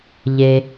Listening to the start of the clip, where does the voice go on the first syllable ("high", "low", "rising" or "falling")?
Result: low